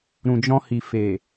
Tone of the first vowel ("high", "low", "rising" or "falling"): low